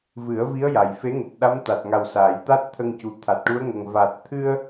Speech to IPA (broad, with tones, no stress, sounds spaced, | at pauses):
v ɨ˨˩˦ ə̯ v i˧˥ ə̯ j a˨˩ j f e˧˥ ŋ u˨˩ t̚ ɗ a˧˥ m t̪ a˨˩ t̚ ŋ a˨˩ w s aː˨˩˨ j t̪ a˦˥ t̚ t̪ʰ ə˧ ŋ c u˨˩ t̪ʰ a˨˩ t̚ ʈ u˧˥ ə̯ ŋ ə˨˩ ŋ v a˨˩ t̚ t̪ʰ ɨ˧ ə̯